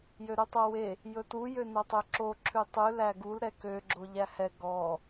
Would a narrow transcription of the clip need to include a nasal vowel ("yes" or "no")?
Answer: no